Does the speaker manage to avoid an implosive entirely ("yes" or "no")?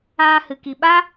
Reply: no